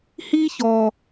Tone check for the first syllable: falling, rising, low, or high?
high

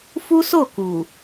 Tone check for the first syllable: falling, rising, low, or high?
high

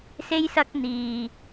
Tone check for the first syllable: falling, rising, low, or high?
high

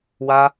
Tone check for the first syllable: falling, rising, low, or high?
high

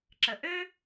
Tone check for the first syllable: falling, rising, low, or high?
low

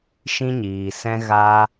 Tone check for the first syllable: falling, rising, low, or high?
high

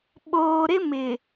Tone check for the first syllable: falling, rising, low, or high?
low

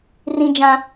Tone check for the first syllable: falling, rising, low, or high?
high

